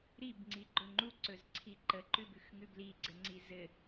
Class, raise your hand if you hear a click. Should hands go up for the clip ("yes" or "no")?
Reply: yes